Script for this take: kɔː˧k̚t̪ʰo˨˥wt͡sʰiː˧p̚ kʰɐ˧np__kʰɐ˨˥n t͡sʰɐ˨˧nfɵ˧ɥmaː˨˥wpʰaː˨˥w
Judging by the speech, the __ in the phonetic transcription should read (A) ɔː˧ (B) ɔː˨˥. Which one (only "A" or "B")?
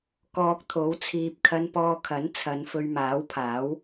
A